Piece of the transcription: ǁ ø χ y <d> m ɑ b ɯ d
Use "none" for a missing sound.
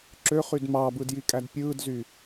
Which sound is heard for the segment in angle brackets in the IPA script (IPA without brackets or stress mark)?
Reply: d